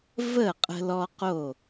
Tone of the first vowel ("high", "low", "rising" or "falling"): falling